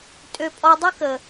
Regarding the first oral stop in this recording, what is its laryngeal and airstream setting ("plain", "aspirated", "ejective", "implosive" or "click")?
ejective